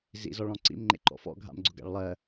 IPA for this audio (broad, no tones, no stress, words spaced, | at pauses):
zḭzɔɭɔ̃ ǀḭmŋ͡ǃḛ ǃɔ̰fɔ̰ɡʱa̰mɡ͡ǀʊɡ a̰ɭlˠɜ